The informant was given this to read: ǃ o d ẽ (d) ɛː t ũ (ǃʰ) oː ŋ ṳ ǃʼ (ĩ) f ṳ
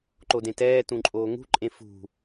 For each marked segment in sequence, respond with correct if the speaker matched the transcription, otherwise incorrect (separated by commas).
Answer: incorrect, incorrect, incorrect